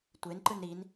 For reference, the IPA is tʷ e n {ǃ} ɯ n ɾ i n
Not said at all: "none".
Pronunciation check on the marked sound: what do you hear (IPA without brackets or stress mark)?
ǃ